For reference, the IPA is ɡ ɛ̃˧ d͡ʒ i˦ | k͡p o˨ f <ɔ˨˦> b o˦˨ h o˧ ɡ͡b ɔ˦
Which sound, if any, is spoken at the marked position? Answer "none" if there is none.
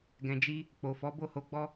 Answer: ɔ˨˦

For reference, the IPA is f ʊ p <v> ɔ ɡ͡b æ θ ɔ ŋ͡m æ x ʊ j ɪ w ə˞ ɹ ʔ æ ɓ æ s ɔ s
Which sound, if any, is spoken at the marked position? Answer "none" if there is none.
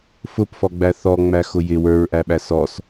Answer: f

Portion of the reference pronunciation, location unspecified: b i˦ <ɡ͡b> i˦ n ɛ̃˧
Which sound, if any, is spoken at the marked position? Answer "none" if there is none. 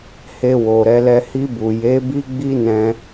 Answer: ɡ͡b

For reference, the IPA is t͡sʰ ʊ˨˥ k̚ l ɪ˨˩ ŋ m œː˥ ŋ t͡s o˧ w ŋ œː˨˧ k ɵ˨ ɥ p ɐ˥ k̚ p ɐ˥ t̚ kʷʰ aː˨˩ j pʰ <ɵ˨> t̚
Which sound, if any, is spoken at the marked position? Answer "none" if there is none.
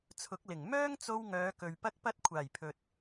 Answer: ɵ˨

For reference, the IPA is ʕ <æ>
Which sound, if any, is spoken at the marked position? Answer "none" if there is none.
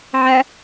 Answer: æ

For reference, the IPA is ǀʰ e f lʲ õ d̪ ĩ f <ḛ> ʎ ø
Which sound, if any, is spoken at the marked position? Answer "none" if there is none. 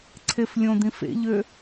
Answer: ḛ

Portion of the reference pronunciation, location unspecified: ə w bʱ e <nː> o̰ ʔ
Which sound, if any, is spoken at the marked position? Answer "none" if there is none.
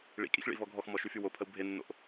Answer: nː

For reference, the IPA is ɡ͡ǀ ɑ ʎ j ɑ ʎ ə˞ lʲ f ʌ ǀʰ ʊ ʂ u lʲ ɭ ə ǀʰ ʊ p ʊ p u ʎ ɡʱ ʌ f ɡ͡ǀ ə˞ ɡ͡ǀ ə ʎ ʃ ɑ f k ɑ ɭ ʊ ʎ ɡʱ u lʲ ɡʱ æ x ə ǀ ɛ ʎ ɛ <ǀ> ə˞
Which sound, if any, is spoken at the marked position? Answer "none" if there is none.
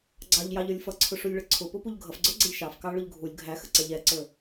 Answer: ǀ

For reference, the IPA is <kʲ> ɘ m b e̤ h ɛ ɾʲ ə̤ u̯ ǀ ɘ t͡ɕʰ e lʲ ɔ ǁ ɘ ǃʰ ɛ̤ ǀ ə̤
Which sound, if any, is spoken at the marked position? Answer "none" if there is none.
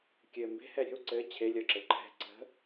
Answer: kʲ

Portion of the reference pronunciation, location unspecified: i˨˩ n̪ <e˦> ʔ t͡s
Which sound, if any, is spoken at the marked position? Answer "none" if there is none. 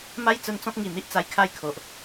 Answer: i˦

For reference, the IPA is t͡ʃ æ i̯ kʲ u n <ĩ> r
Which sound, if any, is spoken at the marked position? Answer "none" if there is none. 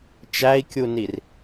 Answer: i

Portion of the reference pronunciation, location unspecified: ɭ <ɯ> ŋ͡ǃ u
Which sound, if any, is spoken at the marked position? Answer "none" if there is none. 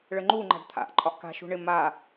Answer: ə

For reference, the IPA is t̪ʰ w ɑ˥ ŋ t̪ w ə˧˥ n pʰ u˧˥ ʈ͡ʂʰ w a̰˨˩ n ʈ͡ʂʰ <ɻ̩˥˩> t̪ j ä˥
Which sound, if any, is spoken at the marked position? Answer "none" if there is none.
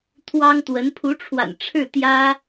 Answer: ɻ̩˥˩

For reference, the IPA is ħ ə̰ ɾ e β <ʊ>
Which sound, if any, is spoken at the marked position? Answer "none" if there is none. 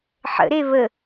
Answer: ə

